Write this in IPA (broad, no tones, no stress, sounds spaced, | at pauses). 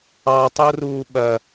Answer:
ɑ tˤ o r uː ɓ ɐ